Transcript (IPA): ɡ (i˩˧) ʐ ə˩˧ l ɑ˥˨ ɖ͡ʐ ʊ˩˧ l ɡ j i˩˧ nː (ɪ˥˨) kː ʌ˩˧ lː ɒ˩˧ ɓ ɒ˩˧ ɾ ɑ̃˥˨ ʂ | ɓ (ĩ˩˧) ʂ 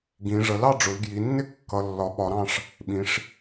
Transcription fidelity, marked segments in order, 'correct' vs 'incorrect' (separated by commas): incorrect, correct, correct